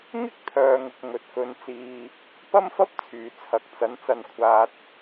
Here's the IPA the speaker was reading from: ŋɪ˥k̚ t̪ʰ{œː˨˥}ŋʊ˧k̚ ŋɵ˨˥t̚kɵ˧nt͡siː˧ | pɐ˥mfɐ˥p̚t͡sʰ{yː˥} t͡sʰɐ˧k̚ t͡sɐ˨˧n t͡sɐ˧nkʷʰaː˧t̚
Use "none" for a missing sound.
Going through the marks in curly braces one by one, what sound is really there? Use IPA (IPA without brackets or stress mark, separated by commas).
œː˧, yː˨